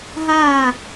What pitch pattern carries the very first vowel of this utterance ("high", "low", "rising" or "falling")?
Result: falling